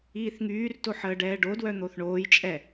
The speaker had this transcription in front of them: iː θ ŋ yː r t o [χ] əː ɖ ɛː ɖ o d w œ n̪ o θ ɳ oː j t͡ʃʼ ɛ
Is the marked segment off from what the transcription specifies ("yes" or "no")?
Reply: yes